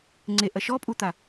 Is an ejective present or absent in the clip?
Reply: present